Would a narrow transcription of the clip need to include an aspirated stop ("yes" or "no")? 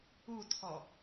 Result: yes